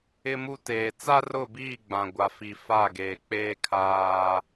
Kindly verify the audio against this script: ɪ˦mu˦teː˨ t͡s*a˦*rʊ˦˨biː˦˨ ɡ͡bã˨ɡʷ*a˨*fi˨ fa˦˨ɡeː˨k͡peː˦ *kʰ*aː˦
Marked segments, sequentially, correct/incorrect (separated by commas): correct, correct, correct